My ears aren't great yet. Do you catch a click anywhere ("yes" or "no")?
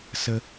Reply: no